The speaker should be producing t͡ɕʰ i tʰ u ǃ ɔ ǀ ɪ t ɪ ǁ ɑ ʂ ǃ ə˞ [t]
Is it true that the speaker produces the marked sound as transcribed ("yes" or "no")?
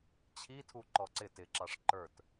yes